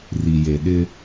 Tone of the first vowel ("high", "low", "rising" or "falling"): low